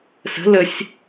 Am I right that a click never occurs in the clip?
yes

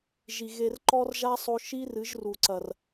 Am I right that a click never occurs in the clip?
no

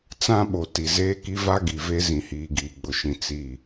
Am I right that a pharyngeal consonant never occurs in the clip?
yes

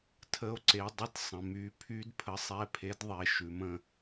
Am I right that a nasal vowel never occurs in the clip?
no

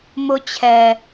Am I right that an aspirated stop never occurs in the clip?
no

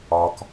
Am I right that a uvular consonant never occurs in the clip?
yes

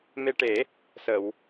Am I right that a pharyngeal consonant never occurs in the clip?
yes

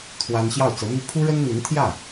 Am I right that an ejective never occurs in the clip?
yes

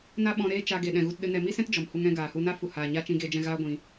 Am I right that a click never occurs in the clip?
yes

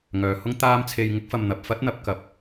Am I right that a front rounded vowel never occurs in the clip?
no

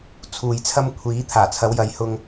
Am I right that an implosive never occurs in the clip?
yes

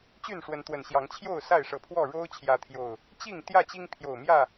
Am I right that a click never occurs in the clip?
yes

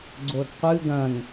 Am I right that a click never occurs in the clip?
no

